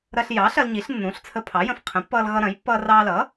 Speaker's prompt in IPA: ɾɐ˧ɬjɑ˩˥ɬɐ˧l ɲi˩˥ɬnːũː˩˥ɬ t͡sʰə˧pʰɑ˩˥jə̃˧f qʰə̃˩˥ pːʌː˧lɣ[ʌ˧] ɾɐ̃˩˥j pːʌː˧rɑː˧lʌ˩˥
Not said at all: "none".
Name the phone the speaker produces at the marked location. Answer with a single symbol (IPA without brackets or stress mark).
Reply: ʌ˧